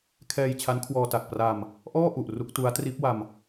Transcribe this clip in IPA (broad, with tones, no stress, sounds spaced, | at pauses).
kʰ ɛː˧ j t͡ɕʰ a˦˥ n kʰ w ɔː˧ t a˨˩ k̚ p r a˧ m | ʔ ɔː˥˩ ʔ u˨˩ ʔ r u˦˥ k̚ t u˦˥ a̯ t r iː˦˥ p̚ w a˧ m